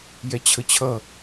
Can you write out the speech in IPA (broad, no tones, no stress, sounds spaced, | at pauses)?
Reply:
j ɛ t͡ɕʰ ə t͡ɕʰ ʌ